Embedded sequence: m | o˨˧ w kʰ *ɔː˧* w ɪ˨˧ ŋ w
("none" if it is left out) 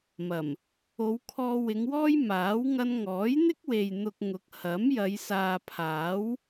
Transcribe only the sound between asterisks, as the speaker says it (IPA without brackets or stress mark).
ɔː˧